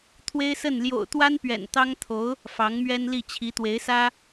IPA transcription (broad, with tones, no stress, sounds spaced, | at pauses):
t̪ʰ w e˥ ɪ̯ s ə˥˩ n l j o̰˨˩ ʊ̯ t̪ w a˥ n p ɥ ɛ̰˨˩ n t̪ ɑ˥ ŋ t̪ʰ o˧˥ ʊ̯ | f ɑ˧˥ ŋ m ɥ ɛ˥ n l i˥˩ t͡ɕʰ i˧˥ t̪ w e˧˥ ɪ̯ s ä˥